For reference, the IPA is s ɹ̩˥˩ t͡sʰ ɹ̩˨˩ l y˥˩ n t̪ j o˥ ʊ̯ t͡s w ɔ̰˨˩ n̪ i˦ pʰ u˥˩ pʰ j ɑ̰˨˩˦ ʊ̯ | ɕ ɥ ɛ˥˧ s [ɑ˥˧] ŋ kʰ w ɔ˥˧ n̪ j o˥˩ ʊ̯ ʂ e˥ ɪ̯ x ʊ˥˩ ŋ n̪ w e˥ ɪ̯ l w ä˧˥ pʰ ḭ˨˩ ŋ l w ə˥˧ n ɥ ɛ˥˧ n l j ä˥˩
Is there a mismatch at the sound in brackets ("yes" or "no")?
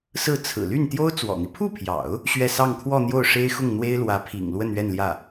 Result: no